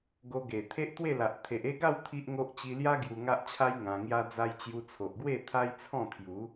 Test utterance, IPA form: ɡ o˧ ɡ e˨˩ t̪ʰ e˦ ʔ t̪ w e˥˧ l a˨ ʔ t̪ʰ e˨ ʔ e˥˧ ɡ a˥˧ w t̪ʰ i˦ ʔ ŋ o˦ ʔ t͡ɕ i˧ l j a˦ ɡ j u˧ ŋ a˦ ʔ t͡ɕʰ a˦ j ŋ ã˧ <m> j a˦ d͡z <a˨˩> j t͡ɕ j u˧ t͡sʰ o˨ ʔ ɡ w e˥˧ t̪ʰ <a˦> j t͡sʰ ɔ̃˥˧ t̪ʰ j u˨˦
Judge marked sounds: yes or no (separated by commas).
no, no, yes